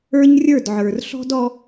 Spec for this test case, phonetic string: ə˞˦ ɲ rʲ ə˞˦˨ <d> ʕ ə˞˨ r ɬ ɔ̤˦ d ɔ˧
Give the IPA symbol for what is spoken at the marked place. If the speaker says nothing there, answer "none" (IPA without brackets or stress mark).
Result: d